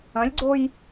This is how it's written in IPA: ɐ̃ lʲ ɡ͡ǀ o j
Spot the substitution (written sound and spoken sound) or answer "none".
none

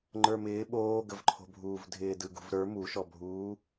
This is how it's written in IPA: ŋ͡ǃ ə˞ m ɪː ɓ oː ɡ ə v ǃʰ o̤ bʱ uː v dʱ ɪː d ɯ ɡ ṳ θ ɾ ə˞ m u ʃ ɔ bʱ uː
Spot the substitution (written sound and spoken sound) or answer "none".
θ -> v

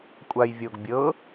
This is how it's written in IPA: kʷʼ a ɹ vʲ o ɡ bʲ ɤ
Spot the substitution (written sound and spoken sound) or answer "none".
ɹ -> j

